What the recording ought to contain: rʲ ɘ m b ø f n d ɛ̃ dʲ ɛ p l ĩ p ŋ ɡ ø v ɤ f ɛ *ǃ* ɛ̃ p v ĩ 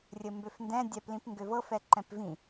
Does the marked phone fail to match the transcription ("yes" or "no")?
no